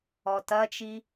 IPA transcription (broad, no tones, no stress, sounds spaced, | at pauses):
ɔ t ɐ t͡ʃ i